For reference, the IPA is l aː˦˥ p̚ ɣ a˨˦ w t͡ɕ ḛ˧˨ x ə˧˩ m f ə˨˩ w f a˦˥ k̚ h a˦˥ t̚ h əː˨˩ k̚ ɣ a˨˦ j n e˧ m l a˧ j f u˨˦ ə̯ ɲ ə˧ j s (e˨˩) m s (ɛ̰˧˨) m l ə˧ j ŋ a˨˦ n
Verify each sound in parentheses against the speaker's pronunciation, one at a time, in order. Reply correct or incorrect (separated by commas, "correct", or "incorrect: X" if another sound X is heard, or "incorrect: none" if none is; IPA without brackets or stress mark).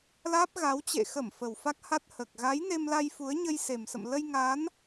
correct, incorrect: ə̰˧˨